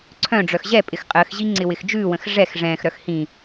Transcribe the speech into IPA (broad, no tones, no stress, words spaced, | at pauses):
ǀʰœ̃ɖ͡ʐœx ʑɛ pʼɪxqʼəːxʑi ŋ͡ǀɪwɪxd͡ʒʉːwə̃x ʐɛx ʐɛ̃ːxɾœx hĩ